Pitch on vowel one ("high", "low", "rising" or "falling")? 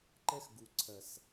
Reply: high